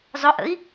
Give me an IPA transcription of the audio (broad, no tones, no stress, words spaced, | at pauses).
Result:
zˤʊʔə̰i̯